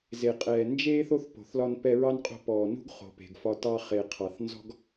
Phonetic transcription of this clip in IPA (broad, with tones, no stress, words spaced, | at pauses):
ze˩qʼɛː˩ nd͡ʒeː˥θ o˥θpo̤˩θlɒ˧n pɛ˧ɹɑ˥nqʼo̤˧pɔː˩ nṳ˥ɡ χo̤˩pe̤˩ɡfɒ˧ tɑ˧χe˩ qʰɑ˩θ nzɔ̤˥ɡ